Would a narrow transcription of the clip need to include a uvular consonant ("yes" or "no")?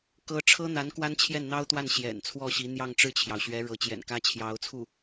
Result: no